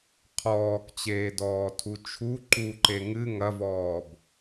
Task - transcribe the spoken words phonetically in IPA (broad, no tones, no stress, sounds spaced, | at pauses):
qʰ ɔː k t͡ɕ eː d ɔː tʰ u t͡ʃʰ u ǃ u ǃ e ŋ ɨ ŋ ɐ v ɔː b